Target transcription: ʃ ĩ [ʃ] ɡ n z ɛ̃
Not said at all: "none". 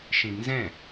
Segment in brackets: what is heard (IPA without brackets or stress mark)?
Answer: none